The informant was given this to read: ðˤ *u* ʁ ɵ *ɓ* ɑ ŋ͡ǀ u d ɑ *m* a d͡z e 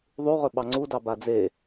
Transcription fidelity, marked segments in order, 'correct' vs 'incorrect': correct, correct, incorrect

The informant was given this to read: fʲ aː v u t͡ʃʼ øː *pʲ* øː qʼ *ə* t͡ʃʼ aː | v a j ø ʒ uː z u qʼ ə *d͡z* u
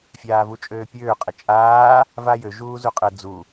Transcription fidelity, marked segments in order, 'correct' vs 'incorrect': correct, correct, correct

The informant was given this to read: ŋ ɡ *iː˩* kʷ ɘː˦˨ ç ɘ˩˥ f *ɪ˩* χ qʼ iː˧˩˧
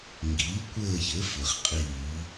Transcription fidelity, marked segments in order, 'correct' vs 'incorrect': incorrect, incorrect

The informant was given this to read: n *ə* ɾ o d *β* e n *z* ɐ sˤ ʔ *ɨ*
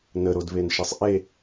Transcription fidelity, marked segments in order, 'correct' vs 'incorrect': correct, correct, incorrect, incorrect

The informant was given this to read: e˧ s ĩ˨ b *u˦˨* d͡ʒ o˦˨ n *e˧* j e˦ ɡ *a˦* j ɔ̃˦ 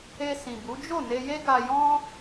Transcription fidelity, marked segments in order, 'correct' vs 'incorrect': incorrect, correct, incorrect

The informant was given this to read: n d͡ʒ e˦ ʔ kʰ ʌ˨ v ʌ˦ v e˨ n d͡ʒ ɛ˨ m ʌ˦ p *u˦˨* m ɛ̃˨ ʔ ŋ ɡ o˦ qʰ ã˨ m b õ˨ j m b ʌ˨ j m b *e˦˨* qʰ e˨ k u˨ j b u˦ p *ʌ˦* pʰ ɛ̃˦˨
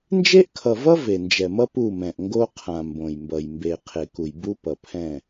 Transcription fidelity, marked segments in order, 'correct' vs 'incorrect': correct, incorrect, incorrect

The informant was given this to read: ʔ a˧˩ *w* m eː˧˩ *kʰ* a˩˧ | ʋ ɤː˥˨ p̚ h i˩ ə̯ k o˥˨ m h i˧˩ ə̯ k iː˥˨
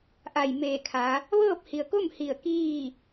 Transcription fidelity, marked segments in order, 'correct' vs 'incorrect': incorrect, correct

